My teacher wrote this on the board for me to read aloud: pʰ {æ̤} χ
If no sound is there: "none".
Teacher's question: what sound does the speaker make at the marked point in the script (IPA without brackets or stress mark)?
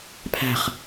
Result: æ̤